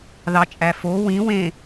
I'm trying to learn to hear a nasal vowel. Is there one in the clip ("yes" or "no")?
yes